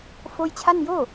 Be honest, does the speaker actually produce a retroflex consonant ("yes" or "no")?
no